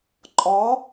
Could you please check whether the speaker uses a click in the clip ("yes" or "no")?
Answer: yes